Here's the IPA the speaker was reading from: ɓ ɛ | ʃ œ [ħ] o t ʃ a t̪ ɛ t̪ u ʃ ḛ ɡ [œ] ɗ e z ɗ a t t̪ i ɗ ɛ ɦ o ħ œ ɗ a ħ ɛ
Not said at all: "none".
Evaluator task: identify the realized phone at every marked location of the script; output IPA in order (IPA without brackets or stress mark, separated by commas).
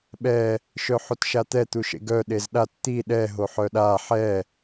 ħ, œ